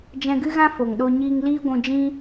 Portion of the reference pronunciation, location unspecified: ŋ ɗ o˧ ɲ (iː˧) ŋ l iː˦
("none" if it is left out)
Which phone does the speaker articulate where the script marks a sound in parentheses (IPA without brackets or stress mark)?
iː˧